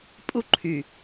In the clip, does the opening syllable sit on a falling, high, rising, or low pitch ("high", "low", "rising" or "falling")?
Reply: high